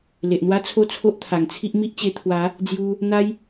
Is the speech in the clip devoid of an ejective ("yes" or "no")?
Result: yes